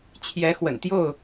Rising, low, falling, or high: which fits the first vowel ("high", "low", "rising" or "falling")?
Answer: rising